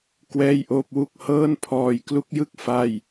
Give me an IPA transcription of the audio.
k w ɛː˥˩ j ʔ oː˥˩ p̚ w u˥˩ k̚ h ɤː˥˩ n pʰ ɔː˧ j k l u˦˥ k̚ j ɯ˥˩ k̚ f a˥˩ j

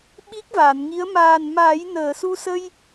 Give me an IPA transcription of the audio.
ɓ i˦˥ k̚ v aː˨˩˨ n ŋ i˧˥ ə̯ m aː˨˩ n m aː˨˩˦ j n əː˨˩˨ s u˧ s ə˧ j

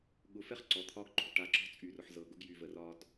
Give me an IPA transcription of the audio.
ɠ ʊ˧ f ɛ˦ χ ǀ ɔ˨ t̪ʰ ɒ˧ ɡ ǃ o̤˨ ʈ a˨ ǁ ɔ̤˦ t͡sʼ y˨ r ʊ˨ ħ z ɤ˨ ɡ ʊ˧ ɡ j y˨ v ə˨ r ɒ˧ d

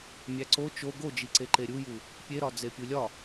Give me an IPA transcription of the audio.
mʲ æ ǀ o t͡ʃ o ɡ o d͡ʒ i ǀ e ǃ e ɾʲ u j u | pʲ e ɾ ɒ d͡z e pʲ u lʲ ɒ

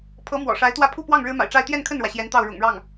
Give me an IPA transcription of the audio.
pʰ ɤ˧˥ m w ɔ̰˨˩ ʂ a˧˥ ɪ̯ t̪ w ä˥˧ pʰ u˥˧ p w ɑ˥˩ ŋ ɻ ɻ̩˥ m a̰˨˩ ɪ̯ ʈ͡ʂ a˥˧ ɪ̯ t̪ j ɛ˥˧ n kʰ ə˥˩ n ɻ w ä˩ ɕ j ɛ˧˥ n t̪ ɑ˥˩ ʊ̯ ɻ ʊ̰˨˩ ŋ ɻ ɑ˥˩ ŋ

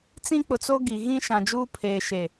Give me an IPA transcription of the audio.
t͡s ĩ˦ k͡p ʊ˨ t͡s o˦ ɡ i˨ ɣ ĩ˦ ʃ ã˨ d͡ʒ uː˦ pʰ eː˨ ʃ e˨

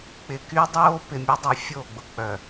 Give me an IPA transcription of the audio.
k͡p ɪ˨ k y˦ dˤ oː˦ p ɪ˨ mʲ o˦ dˤ y˨ fʲ o˦˨ ɡ͡b ʊ˨ k͡p œ˨

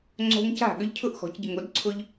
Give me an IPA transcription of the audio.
ŋ͡ǀ o̤˦ ŋ c a̤˥˩ ɠ ʏ˦ ʎ cʰ ʊ˥˩ ʔ x ɔ̤˨˩˦ c ɟ ə˨ ŋ o˩˥ d ǀʰ ʊ˦ ʎ

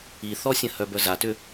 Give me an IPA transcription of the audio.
i θ ɔ sʲ ə̃ h œ b œ z a t ʏ

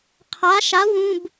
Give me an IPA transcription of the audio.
qʰ a˩˥ ʃ a˩˥ w ũ˩˧˩ b

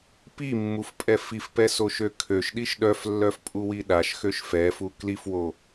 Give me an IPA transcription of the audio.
p i mː u f pʼ ɛ f i f p ɛ s o ʃ ø kʰ ø ʃ ɗ i ʃ ɗ œ f lː œ f pʼ u w i ɗ a ʃ x ø ʃ f ɛ f u k l i f w o

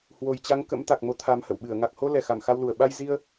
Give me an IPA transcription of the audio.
h w o˨˩ j t͡ɕ a˨˦ ŋ k ə̰˧˥ m t̪ a˨˩ k̚ m o˨˦ t̪ʰ a˨˦ m h ə̰˧˨ w ɓ ɨ˧˩ ə̯ ŋ a˨˩ k̚ h o˧ l ɛ˨˩ x a˧˩ m x a˧ w l u˧˩ ə̯ ɓ a˧ j z i˧ ə̯

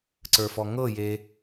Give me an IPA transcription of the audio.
ǀ ə˞ f ɔ ŋ ɤ j e

